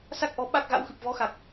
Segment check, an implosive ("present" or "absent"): present